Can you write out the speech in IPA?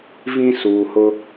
vĩ˨ suː˨hʊ˦

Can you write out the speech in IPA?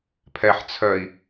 pʰɛħ t͡sʰœi̯

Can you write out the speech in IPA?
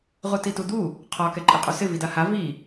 ʁutitud̪u | qʰɒ kɛǃʼiqʼusɪ vidaha vi

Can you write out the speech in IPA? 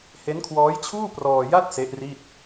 he˦˥nkʰwɔː˦˥jt͡ɕʰuː˥˩ prɔː˧ja˥˩t̚ se˦˥ʔri˥˩t̚

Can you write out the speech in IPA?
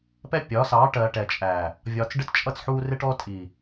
pɛ˦pʲɒ˨˦sɑː˨˦ʈɜ˨ ʈɛ˨t͡ʃʼæ˨ | vʲɒː˨t͡sɖɪ˦tt͡ʃʼʌ˦˨t͡sħuː˦ rɪ˦ʈɔ˦ tʼi˨

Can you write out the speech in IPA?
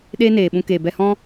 ɗeː˦neː˨ɓũ˧ keː˨ bɛ˧hɔ̃˦

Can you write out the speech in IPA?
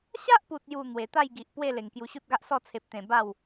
ɕa˦ʔpu˨t̚ju˨˩ n̪we˨˩t̪a˥˧jɡi˨ʔ pwe˥˧ le˨˩ŋkju˧ɕu˦t̚ɡa˦ʔ sɔ˥˧t͡sʰe˨p̚t̪ẽ˨˩ ba˥˧w

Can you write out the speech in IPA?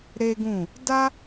ɾe˦ɡũ˦˨ | da˦

